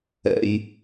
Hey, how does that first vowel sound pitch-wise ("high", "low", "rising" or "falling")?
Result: low